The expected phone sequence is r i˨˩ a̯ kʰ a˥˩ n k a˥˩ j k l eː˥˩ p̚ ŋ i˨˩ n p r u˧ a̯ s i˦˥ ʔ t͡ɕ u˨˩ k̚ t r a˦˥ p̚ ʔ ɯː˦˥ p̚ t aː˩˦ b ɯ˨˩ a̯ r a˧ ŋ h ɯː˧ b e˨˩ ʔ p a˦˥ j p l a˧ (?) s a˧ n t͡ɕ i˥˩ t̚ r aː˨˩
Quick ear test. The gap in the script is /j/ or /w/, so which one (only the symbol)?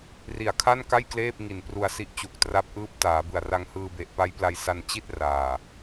j